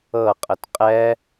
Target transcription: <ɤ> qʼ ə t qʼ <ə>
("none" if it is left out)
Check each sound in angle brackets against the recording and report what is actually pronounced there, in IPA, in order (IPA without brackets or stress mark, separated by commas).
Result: ɤ, ɛ